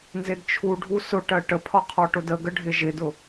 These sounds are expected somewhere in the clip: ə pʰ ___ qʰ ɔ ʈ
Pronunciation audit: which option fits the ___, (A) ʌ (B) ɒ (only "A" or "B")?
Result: B